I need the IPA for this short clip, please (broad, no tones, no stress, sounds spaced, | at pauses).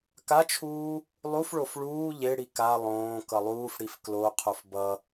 k a t͡ʃʰ uː | lˠ u f ɭ o f ɭ uː ʎ e ɽ i k a lˠ õː k ʌ lˠ uː f ɽ i f k l o qʰ o f b ʌ